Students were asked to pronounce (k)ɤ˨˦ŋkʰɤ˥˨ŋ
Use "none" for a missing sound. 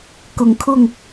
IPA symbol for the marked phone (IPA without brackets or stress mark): k